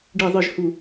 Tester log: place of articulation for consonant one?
retroflex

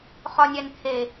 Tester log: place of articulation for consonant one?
uvular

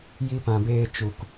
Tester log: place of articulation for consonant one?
palatal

